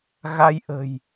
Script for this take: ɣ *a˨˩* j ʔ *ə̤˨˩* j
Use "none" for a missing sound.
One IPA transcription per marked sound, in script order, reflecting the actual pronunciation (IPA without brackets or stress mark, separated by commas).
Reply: a˧, ə̤˨˩